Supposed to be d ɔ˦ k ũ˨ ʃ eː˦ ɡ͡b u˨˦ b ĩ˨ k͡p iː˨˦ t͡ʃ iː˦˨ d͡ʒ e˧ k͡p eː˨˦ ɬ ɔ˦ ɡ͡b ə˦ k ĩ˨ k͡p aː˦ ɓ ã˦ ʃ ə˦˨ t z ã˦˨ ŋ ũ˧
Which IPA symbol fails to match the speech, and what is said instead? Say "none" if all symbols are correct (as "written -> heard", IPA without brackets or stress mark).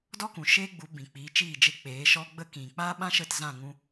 ɬ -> ʃ